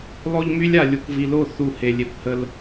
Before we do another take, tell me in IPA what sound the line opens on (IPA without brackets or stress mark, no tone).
lˠ